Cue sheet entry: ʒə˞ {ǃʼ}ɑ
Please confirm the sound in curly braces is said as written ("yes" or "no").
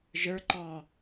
no